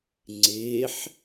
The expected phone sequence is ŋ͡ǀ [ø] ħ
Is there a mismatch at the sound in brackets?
yes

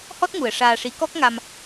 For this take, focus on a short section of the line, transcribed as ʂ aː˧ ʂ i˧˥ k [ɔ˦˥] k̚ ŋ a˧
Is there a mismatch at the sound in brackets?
no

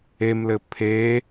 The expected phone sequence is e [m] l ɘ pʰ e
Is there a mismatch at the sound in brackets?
no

